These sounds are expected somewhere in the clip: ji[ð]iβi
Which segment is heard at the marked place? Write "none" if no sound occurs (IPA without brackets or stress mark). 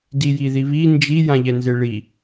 ð